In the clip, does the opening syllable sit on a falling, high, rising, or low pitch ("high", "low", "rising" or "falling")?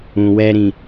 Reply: low